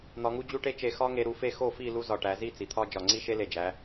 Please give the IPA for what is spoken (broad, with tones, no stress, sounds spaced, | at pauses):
n̪ ɒ˧ ŋ u˥ d͡ʑ u˥ ʈ e˥ t͡ʃ e˧ x ɒ˥ ŋ e˧ ɾ u˧ f e˥˧ x o˥˧ f i˥˧ l u˥ z ɒ˧˩ ʈ æ˩˧ z i˥˧ t͡s i˩˧ t̪ʰ ɒ˥ d͡ʒ ɒ˧˩ ŋ͡ǀ i˥ ʃ e˥ l e˧˩ d͡ʒ æ˩˧